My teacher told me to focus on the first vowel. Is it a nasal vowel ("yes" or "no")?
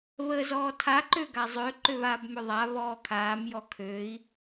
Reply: no